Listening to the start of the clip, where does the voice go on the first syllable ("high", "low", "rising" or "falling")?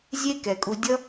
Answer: high